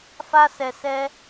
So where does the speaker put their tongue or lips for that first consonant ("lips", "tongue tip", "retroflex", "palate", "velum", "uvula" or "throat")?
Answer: lips